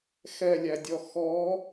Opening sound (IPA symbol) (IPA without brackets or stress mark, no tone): x